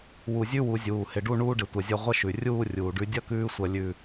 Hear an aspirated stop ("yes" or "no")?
no